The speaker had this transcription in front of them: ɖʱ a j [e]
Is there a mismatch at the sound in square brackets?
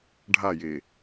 no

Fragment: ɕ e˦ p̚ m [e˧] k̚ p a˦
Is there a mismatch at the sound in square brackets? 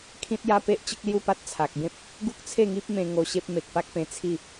yes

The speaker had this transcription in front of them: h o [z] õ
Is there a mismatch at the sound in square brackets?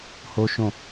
yes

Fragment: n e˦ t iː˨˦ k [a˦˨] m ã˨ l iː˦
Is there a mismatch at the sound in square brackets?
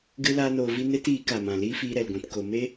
yes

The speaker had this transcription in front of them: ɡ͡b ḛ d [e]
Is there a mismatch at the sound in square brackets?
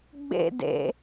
yes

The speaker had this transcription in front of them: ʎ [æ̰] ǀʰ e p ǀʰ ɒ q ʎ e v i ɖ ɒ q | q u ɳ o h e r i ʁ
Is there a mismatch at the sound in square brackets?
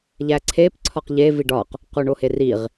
yes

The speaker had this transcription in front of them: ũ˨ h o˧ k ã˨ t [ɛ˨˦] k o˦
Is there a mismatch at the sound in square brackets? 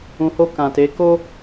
yes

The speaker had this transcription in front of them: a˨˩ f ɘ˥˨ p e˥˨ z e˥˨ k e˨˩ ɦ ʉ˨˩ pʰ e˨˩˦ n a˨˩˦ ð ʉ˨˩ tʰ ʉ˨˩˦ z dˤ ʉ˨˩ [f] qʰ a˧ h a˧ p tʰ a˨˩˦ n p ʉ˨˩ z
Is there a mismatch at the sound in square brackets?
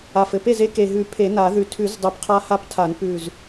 yes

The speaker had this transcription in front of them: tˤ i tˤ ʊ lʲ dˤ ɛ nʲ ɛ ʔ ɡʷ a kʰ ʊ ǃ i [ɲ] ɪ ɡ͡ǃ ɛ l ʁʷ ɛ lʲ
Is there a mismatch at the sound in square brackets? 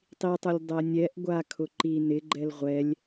yes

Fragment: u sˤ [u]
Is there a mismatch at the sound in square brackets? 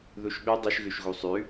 yes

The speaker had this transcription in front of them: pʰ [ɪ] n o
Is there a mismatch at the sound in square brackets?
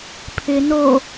no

